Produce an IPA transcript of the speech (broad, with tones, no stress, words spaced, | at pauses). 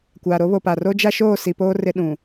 kʷaː˨ɾo˦βo˨pa˨ ro˦d͡ʒa˦ʃoː˦˨ si˨poː˦ rɪ˦ɗũ˨